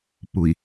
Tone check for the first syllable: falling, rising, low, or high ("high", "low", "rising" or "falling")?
low